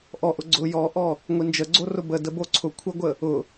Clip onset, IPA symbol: ʔ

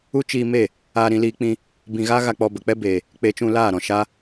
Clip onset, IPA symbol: u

